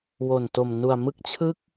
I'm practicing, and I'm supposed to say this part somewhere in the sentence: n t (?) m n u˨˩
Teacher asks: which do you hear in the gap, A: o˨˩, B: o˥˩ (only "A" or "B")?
A